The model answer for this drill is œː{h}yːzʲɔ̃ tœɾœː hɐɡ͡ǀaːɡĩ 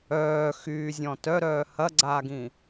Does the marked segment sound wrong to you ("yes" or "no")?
yes